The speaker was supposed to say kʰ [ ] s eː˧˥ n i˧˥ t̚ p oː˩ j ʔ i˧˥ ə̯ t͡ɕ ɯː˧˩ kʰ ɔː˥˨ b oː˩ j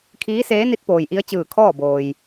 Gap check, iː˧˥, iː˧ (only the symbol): iː˧˥